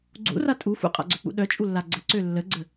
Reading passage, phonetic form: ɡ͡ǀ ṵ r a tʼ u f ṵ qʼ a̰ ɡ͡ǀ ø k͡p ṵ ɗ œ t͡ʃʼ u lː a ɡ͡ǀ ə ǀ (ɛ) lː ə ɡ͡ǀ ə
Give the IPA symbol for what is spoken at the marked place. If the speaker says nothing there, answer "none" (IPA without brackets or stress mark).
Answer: ø